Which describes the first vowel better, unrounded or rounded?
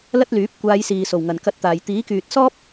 unrounded